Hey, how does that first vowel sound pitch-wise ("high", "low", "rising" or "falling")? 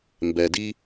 low